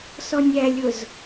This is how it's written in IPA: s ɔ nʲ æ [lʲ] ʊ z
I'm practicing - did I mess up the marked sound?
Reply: no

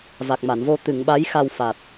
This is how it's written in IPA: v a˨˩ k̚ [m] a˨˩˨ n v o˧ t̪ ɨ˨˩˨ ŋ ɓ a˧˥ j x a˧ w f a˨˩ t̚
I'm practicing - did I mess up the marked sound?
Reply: no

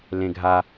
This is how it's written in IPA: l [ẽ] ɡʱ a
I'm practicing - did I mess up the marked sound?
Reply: no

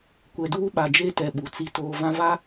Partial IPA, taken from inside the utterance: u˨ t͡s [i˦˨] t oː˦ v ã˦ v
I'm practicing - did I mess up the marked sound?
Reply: yes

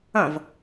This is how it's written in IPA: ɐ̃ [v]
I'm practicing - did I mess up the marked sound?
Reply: no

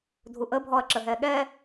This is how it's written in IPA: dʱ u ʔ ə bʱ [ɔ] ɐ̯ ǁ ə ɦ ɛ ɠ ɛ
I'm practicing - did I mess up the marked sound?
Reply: no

